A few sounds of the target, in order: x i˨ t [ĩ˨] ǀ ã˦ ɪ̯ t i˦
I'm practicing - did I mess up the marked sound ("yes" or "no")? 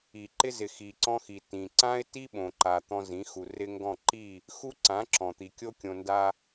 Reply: no